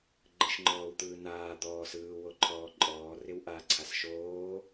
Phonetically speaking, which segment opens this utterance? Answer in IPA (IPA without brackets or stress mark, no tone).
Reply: ɡ͡ǃ